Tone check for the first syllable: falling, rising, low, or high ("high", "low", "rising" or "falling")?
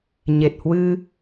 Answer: low